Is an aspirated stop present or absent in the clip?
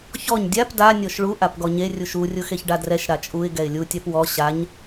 absent